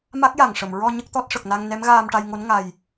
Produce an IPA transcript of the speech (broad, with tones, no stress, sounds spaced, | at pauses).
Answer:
m a˦˥ k̚ j a˨˩ ŋ ʂ ə˨˩˨ m ɹ ɔ˧ ɲ ə˦˥ k̚ t̪ ɔ˦˥ t̚ ʂ ə˨˩ k̚ n a˧ ŋ n ɛ˧˥ m ɣ aː˧ m ʈ a˧ j ŋ o˧˥ n ŋ a˨˩ j